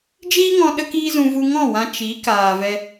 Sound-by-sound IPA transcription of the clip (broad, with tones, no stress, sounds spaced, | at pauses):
d͡ʒ iː˦ ŋ ɔ̃˧ ɗ ə˧ k iː˧ z ũ˨ v u˧ ŋ ɔ̃˦˨ w ã˧ t͡ʃ i˨˦ k aː˨ v ɛ˧